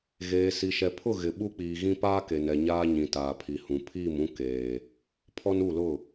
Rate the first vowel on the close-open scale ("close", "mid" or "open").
mid